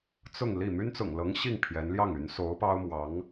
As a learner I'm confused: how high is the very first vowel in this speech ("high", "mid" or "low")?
high